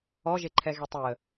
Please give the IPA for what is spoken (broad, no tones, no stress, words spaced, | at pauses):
ɔʒeǃʰɛɣe tˤeə̯